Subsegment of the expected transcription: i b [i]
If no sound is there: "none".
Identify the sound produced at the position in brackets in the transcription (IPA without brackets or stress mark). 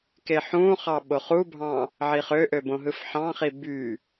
y